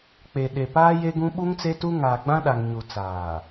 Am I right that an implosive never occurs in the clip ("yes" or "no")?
no